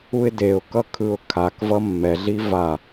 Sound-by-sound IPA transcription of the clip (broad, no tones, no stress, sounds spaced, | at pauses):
u ɪ̯ d e ʊ̯ k ʌ kʰ ɯ ʊ̯ kʰ a k v ʌ mː ɛ ɮ i v a